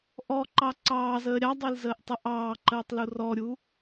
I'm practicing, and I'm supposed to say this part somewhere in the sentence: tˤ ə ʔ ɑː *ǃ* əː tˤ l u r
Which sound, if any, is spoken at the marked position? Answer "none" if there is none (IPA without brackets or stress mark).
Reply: ǃ